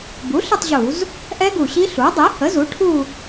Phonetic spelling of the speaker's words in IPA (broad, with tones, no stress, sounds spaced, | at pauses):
b u˩˥ ɬ ə˥˧ tˤ ʑ u˧˩˧ z | ʔ ɛ˦˥ ɡ u˨˩ ɕ i˦˥ ɬ u˩˥ dˤ e˩˥ h ə˩˥ z u˩˥ ʈʰ u˥˧